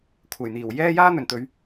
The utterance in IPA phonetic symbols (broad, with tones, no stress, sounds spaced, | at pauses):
kʷʰ ɐ˨˩ j n̪ iː˨˩ w j ɛː˥ j aː˥ n̪ ɵ˨˩ n t̪ ɵ˨˧ ɥ